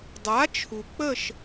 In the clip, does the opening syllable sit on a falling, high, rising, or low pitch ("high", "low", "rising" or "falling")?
rising